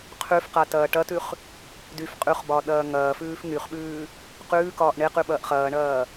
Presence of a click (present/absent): absent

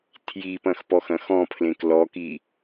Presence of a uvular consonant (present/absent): absent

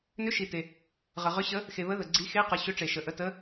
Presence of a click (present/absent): present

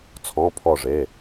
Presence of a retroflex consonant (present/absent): present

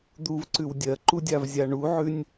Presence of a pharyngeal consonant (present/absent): present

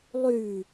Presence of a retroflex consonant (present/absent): absent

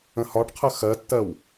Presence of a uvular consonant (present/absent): present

